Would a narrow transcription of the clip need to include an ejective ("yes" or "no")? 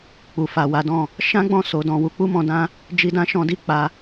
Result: no